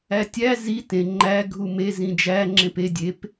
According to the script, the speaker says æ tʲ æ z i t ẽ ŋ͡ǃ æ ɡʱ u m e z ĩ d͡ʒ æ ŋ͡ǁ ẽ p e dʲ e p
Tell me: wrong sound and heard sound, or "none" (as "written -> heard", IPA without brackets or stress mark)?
none